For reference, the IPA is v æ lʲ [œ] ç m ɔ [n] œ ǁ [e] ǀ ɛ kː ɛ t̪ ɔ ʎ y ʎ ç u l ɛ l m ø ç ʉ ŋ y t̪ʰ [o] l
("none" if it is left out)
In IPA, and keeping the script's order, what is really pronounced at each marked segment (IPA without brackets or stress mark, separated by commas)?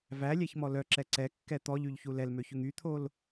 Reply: æ, l, ɛ, o